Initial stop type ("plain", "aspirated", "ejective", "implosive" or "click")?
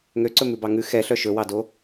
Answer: click